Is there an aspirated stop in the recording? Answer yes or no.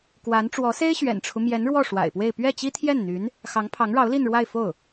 yes